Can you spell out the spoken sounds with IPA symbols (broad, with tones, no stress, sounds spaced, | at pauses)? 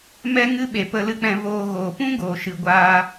m ɛ˧ ŋ ɨ˧ ɓ e˨ p ə˧ l ɨ˧ k͡p ɛ̃˧ v oː˧ ɣ oː˨ p ũ˦ ɡ oː˨ ʃ ɨ˨ ɡʷ aː˧